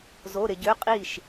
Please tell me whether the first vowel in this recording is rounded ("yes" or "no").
yes